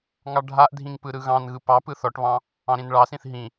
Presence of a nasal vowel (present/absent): present